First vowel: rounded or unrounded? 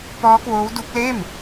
rounded